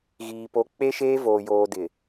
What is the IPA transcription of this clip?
ɣ iː˨ p o˨˦ k͡p e˦ ʃ eː˦ v oː˨ j oː˨ d ɪ˨

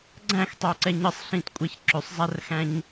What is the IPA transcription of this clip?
ɡ͡ǀ æ̃ x tˤ ø ǀ ɛ ɲ ə sˤ ɬ ĩ t kʷʼ æ ç ǁ ø sˤ zˤ æ r x æ̃ ɲ

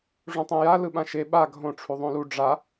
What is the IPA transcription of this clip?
ʐ ũ tˤ ẽ j a l ɯ ɓ ã ʃ e ɓ a ɡʱ õ ʈ͡ʂʰ u ðˤ õ l u ɖ͡ʐ a

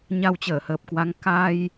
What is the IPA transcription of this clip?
ɲ a˧ w t͡ɕ əː˧˩ h əː˨˩ p̚ k w a˨˦ ŋ k a˧ j

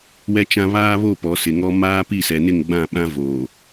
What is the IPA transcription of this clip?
w ɛ˦ t͡ʃ ã˦ β aː˦ β o˦˨ p ɔ˨˦ s ɪ˨ ŋ ɔ˦ m aː˦ p i˦˨ s ɛ˨ n ɪ˦˨ ŋ ɡ͡b ã˦˨ ɓ ã˦ v oː˨

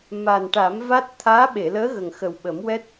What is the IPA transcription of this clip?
m a˨˩ n ʈ a˨˩˦ m v a˦˥ t̚ t̪ʰ aː˧˥ ɓ e˨˩˨ l əː˧˥ ɣ ə˨˩ ŋ x ə˨˩ w ɓ ə˨˩˦ m w ɛ˦˥ t̚

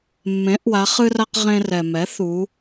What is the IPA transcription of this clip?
mː ẽ˩˥ ʔ w a˩˧ χ ɨ˧ r a˧ q ʁ ẽ˧ r ɛ˩ m ɛ˩˥ θ u˩˧

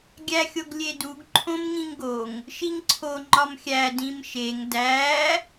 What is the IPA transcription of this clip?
ɡʲ æ xʲ o ɡ lʲ e d u ɡ ǃʰ õ m ŋ ĩ ŋ ɡ o ŋ | ʃ i ŋ ǀʰ o ŋ͡ǃ ɒ m xʲ æ d ĩ m ʃ e ŋ d æ

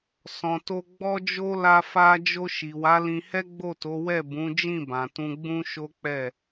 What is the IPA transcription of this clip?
s ɔ̃˨ t o˧ ɡ͡b ɔ˦ d͡ʒ o˦ l a˧ f a˧ d͡ʒ o˧ ʃ i˨ w a˨˦ l ĩ˧ h ɛ˦ ɡ͡b o˦˨ t o˨˦ w ɛ˦˨ b ũ˨˦ d͡ʒ ĩ˦˨ b ã˨ t ũ˧ ɡ͡b ũ˦ ʃ o˦ k͡p ɛ˦˨

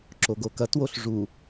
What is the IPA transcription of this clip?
ǁ o ɡ o k ɐ t w o ɬ ʐ u

